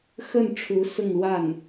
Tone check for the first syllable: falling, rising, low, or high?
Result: falling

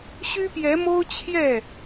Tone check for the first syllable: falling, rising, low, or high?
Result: high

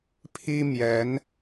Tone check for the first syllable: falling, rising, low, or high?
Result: high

